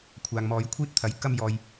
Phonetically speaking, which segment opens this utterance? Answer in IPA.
kʷʰ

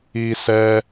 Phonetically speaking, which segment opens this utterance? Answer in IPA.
i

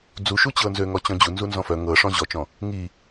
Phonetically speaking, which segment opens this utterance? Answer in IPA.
d͡z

